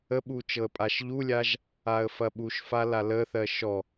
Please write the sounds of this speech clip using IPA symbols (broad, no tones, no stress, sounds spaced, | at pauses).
ə ɓ u t͡ʃ ɤ ə̯ pʼ a ʃ ʎ u lʲ a ʒ | a ə̯ f ɐ ɓ u ʃ f a l a l ə θ ɜ ʃ ɔ